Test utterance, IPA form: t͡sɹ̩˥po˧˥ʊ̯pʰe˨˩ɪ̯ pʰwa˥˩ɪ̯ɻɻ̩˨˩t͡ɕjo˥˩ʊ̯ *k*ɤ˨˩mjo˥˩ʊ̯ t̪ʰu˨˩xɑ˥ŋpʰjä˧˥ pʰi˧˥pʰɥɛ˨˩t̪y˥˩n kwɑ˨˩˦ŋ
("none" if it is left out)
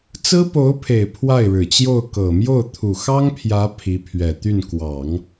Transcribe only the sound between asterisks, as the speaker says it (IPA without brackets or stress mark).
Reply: k